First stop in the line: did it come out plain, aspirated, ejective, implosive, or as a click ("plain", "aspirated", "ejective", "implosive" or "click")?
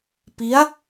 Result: plain